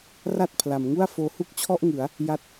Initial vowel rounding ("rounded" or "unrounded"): unrounded